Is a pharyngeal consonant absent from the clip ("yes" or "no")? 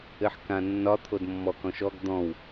no